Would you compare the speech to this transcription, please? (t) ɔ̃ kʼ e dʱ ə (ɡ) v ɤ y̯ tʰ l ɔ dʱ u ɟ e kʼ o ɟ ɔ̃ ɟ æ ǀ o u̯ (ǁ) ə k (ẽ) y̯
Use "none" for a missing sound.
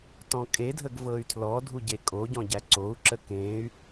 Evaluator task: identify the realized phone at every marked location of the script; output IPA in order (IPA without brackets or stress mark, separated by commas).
t, ɡ, ǁ, ẽ